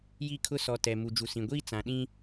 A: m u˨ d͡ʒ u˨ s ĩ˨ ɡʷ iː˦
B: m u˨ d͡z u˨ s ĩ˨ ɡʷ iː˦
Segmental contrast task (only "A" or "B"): A